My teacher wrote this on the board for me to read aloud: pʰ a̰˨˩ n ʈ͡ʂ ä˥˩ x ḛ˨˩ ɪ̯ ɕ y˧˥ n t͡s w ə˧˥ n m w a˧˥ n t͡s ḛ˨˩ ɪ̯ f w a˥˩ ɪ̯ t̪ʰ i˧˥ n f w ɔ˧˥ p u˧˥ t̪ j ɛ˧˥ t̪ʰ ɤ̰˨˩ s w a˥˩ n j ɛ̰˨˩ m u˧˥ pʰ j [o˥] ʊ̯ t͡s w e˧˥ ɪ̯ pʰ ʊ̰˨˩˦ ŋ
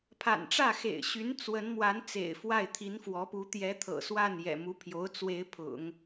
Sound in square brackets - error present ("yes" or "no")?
yes